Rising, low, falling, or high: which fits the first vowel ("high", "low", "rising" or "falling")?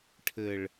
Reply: low